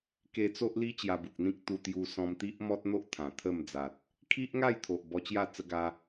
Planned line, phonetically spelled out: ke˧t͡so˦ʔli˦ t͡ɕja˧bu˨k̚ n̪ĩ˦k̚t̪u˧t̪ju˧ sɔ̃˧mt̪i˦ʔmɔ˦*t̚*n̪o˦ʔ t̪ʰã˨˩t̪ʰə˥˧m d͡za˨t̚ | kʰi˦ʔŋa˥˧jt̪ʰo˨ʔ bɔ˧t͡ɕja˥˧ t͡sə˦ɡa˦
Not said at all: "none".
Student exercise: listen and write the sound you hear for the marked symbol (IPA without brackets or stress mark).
t̚